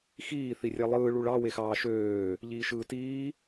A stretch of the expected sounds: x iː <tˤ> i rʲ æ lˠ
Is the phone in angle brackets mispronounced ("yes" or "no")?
yes